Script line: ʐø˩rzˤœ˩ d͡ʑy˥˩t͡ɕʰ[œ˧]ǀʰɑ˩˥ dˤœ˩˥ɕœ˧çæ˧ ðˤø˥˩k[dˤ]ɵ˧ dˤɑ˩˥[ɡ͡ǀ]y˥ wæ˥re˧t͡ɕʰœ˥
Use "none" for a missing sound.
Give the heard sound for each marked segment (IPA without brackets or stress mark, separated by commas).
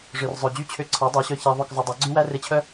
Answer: ø˧, zˤ, ɡ͡ǀ